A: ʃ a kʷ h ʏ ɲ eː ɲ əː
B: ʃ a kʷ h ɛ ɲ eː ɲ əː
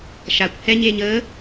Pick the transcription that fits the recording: B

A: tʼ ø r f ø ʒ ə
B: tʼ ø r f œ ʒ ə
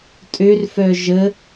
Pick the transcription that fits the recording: B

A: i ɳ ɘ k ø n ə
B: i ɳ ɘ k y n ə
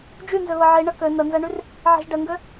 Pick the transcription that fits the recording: A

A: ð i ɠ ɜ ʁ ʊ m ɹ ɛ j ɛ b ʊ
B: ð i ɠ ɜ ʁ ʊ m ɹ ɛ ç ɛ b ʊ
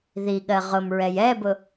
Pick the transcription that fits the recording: A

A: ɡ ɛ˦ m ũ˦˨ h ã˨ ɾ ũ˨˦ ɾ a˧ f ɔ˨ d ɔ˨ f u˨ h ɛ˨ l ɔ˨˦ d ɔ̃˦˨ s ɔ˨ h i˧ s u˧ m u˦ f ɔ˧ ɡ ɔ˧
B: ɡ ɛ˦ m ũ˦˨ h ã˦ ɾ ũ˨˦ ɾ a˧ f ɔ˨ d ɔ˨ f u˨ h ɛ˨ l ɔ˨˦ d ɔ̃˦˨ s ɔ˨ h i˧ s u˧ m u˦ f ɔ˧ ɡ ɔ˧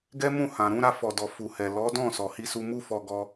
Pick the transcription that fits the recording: A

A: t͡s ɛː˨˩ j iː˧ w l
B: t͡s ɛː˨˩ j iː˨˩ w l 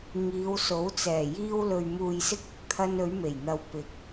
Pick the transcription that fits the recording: A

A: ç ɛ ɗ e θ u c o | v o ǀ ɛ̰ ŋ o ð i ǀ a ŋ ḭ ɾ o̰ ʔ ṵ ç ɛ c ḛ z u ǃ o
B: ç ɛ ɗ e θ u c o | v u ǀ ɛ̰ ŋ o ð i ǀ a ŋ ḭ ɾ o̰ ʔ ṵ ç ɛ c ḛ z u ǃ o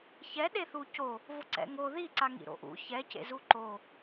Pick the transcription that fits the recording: A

